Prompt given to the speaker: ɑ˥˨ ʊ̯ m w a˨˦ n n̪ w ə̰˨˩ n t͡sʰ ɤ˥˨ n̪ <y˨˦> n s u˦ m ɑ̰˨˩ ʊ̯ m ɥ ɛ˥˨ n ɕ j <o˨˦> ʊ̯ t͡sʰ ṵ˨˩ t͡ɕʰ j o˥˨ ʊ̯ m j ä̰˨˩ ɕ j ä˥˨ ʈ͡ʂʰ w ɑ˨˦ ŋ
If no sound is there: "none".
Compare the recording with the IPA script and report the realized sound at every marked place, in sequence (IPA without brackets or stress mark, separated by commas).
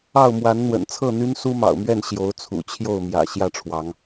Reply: y˦, o˨˦